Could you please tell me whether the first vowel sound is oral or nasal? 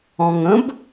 nasal